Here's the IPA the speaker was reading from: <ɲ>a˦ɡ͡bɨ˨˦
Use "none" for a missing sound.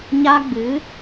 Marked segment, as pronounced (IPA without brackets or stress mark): ɲ